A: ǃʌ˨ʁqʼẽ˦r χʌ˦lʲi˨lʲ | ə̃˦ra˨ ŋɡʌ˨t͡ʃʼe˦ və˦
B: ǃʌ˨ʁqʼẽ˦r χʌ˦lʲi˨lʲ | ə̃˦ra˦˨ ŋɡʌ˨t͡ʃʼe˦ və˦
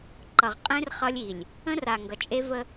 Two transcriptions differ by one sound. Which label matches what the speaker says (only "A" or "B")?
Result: A